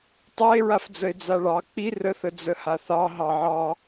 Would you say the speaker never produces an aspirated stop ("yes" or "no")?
yes